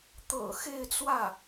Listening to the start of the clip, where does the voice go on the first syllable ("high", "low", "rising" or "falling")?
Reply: low